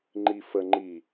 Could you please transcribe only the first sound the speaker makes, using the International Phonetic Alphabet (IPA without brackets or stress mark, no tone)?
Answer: ŋ͡ǃ